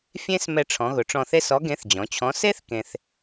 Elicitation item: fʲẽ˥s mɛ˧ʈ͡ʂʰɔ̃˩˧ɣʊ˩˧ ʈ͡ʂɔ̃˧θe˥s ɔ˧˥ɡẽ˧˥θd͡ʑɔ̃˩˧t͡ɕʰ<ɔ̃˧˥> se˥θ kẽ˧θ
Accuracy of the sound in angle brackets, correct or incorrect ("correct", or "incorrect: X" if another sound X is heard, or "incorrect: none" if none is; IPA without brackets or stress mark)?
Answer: correct